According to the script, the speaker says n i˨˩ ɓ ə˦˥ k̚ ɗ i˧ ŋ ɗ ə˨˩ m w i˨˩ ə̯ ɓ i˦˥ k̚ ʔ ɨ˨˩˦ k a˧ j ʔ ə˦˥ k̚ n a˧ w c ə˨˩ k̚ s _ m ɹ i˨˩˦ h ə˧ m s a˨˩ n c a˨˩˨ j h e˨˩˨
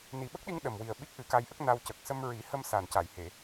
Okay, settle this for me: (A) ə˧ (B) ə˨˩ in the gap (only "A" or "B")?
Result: A